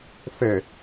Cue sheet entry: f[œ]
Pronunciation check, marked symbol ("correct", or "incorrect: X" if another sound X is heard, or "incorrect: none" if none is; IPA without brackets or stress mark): incorrect: ɛ